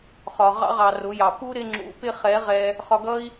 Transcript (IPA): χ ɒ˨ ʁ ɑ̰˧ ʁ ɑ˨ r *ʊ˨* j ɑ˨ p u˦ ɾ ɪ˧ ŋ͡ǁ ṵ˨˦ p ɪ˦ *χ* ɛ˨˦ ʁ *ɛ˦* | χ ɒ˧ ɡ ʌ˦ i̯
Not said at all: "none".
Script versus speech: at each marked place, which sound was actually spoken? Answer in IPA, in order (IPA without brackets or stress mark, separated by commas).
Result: ʊ˨˦, χ, ɛ˧